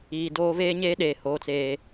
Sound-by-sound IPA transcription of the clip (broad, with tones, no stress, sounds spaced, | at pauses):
iː˨ d oː˦ v eː˦ ɲ eː˦ ɗ eː˨ h oː˨ t͡s eː˨